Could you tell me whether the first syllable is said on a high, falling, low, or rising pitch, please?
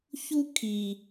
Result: high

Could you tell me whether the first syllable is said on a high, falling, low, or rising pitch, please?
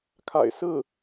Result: low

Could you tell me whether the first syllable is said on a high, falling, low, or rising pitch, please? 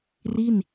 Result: falling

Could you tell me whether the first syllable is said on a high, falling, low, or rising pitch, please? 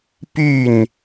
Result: falling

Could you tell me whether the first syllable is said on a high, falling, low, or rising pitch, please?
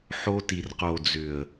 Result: high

